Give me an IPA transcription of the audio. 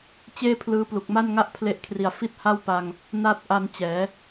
t͡ɕ eː˥˩ pʰ l ɯː˦˥ p l u˨˩ k̚ m a˥˩ n ŋ a˥˩ ʔ pʰ l e˦˥ ʔ kʰ r i˨˩ a̯ f i˥˩ t̚ h a˥˩ w p a˧ ŋ | n a˦˥ t̚ ʔ a˧ n t͡ɕ ɛː˩˦

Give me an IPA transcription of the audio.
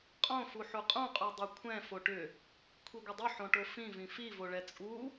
qʼ õ f u ħ u qʼ ũ qʼ u dˤ u kʷʰ ɛ̃ f o ʈ ʏ | kʷʰ i ɡʷ ɘ dˤ ɵ ħ õ ʈ o f ĩ v ĩ f i v o ɭ ɛ t͡sʼ u

